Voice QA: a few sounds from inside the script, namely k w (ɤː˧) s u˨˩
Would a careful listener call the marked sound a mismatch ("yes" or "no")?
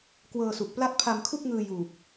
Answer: no